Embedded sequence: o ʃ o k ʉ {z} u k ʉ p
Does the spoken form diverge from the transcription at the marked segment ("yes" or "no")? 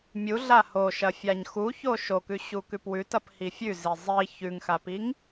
yes